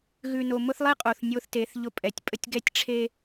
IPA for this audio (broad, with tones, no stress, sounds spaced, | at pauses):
ɣ ʉ˨ n o˨ m ʊ˦ θ lˠ e˦ qʼ o˨ θ nʲ o˦ θ t e˨˦ θ ʎ ʊ˦ pʼ ɛ˨˦ tʲ pʼ ə˦ tʲ ɡ ɛ˦ tʲ ʈ͡ʂʰ e˦